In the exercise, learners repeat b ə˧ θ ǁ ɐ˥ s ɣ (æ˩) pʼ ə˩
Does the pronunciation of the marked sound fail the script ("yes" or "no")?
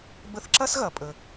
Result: yes